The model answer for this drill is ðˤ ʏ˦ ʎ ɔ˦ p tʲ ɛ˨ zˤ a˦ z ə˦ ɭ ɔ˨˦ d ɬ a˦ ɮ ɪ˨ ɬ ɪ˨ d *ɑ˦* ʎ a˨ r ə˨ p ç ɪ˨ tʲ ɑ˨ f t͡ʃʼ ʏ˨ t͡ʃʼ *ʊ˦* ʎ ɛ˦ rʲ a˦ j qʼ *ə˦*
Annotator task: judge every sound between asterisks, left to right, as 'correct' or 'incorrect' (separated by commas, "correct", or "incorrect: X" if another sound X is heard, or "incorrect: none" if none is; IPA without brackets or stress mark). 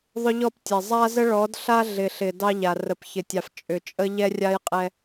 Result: correct, incorrect: ə˦, incorrect: ɛ˦